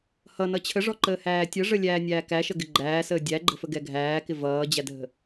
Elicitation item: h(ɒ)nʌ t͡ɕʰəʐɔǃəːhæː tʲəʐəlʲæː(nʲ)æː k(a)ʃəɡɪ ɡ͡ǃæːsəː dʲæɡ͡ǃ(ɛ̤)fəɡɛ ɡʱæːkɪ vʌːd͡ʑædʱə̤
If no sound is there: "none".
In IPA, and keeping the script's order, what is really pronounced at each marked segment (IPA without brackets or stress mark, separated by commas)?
ʌ, nʲ, æ, ə̤